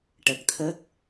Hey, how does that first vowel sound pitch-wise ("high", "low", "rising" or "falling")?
low